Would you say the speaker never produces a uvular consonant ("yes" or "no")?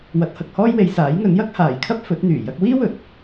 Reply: yes